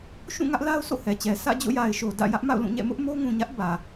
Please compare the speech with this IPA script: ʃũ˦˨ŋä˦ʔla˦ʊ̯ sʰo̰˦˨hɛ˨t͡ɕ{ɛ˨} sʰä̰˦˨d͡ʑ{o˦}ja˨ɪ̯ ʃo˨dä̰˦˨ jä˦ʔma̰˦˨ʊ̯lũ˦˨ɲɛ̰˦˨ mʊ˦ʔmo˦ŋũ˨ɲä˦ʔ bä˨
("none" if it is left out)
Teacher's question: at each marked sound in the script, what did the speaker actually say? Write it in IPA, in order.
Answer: ɛ˨, o̰˦˨

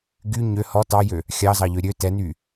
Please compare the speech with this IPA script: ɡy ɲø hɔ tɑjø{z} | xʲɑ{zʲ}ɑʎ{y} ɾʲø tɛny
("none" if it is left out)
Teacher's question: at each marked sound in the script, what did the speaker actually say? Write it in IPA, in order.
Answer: none, z, ø

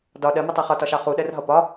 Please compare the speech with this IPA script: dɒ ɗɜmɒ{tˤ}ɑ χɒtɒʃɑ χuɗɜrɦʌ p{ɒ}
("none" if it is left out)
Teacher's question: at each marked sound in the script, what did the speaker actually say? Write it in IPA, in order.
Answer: tˤ, ɒ

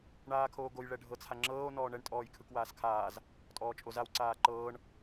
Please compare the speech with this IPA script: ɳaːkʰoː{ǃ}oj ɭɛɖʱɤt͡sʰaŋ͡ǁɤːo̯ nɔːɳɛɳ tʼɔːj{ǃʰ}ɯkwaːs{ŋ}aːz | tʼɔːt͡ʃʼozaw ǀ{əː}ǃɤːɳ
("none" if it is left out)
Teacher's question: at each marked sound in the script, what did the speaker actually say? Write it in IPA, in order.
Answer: ɡ, kʰ, kʰ, aː

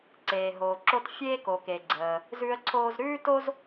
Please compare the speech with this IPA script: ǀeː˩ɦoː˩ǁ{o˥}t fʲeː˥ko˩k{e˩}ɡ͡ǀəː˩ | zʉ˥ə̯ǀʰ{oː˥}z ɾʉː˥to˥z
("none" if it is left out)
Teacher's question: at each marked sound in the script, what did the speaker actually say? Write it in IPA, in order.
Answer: o˥, e˩, oː˥

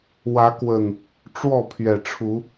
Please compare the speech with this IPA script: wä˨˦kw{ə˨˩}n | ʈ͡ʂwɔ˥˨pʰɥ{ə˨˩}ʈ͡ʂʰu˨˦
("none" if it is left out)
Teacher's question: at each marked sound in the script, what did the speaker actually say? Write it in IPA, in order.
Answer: ə˨˩, ɛ˨˩

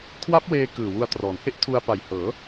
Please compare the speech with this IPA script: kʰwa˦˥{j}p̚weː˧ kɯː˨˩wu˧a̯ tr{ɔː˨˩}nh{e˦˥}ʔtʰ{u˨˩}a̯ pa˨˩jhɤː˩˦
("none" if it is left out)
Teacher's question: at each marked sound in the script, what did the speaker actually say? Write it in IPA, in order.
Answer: none, ɔː˩˦, e˦˥, u˧

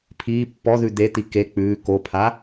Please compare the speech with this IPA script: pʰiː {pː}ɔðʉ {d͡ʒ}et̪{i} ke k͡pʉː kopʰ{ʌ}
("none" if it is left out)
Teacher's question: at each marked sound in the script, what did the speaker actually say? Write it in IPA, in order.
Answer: pː, d̪, i, a

